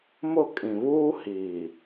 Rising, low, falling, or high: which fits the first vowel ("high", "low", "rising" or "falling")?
falling